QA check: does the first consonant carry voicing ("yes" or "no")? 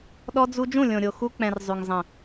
yes